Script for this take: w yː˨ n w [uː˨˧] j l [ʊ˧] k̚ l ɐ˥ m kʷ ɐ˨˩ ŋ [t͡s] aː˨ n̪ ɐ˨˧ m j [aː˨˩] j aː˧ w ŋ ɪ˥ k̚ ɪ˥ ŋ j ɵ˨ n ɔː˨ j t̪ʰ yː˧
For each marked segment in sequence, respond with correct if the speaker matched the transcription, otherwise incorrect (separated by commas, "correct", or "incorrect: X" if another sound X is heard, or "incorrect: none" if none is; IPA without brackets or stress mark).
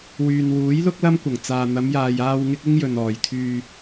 incorrect: uː˨˥, incorrect: ʊ˥, correct, incorrect: aː˨